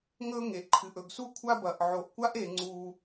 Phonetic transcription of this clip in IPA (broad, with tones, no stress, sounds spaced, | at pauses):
ŋ ɵ˥ ŋ e˩ ʔ ǃʰ ɨ˩ ʔ ɵ˩ ɡ s u˥ kʷʰ a˥ b ɐ˩ ʔ ʕ o˩ ʔ kʷ a˥ ʔ e˩ ŋ͡ǀ u˩